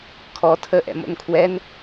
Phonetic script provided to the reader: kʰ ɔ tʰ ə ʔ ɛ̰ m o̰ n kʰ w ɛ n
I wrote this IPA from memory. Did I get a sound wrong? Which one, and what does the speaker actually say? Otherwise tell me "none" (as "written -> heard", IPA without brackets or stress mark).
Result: none